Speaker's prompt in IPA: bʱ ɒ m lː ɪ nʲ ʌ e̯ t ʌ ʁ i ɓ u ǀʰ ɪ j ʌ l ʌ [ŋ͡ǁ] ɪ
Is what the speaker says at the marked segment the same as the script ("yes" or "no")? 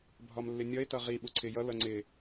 no